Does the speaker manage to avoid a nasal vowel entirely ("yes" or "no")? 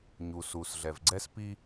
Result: yes